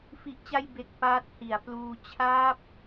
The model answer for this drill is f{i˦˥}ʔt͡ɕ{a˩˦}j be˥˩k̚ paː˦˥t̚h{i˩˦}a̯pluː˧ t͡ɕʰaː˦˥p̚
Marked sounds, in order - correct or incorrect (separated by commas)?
correct, incorrect, correct